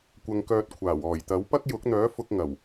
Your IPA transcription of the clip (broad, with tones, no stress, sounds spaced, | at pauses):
kʷ ɐ˧ ŋ k œː˧ t̚ kʷʰ aː˨˩ w ɔː˨˩ j t̪ ɐ˨˥ w p ɐ˥ k̚ j ʊ˨˥ k̚ n̪ œː˨˥ f ʊ˧ k̚ ŋ ɐ˨˩ w